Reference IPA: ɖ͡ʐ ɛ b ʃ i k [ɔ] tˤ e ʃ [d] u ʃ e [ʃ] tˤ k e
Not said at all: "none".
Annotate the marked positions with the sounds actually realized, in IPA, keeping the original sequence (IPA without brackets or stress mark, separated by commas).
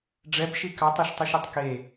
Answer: ɑ, tˤ, none